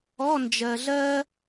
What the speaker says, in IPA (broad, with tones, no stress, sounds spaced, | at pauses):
ɔ˧˥˧ n d͡ʒ ɜ˨ ɮ ɜ˥